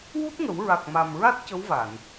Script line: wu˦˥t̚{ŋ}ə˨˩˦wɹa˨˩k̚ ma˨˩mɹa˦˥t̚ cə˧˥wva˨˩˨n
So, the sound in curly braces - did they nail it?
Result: yes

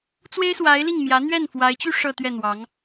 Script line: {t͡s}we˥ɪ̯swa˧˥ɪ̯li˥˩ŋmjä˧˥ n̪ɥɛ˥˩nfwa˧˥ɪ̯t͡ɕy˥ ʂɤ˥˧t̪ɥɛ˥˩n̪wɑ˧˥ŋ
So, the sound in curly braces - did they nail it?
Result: yes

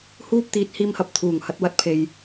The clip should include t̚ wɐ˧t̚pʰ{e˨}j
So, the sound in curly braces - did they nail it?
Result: yes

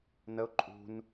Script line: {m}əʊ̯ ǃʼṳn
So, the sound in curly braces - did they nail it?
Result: no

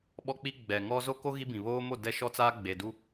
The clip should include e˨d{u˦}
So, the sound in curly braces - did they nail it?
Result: yes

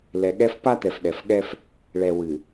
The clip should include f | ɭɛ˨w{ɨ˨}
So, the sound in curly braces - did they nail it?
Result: yes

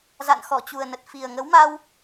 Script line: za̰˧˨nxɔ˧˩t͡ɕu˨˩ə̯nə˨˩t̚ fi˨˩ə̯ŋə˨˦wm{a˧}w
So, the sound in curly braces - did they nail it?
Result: yes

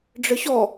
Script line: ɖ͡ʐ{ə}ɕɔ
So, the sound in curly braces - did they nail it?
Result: yes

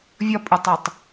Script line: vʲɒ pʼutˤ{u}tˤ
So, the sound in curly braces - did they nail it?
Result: yes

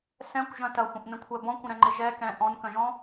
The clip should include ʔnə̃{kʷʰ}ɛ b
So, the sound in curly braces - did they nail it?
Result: yes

